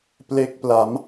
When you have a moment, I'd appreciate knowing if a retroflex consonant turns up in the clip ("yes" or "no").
no